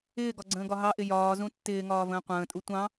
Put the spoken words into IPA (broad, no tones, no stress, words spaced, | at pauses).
ɪːɡɒɡ͡ǀə̃ːɡɒ ɦɑʔɪ jɒːzũ tːɪːŋɒːvə̃ː qʷə̃ːtʼu tʷɑ̃